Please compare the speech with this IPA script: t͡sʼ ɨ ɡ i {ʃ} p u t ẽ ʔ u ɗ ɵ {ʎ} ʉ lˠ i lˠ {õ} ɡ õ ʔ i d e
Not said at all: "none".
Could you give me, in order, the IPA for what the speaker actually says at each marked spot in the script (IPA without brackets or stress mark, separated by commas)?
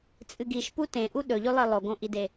ʃ, ʎ, o